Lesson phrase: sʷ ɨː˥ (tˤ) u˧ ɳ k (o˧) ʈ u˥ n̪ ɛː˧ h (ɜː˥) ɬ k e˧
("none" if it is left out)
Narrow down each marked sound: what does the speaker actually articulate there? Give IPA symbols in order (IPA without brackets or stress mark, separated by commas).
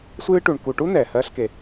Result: ʈ, u˧, ɜː˥